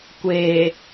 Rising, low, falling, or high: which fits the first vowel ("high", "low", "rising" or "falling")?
low